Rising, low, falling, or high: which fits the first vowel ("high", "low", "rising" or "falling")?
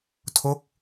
falling